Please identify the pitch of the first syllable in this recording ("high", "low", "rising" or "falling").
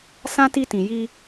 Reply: high